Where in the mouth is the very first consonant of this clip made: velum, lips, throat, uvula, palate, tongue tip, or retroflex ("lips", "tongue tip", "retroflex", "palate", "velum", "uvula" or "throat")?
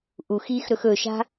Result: throat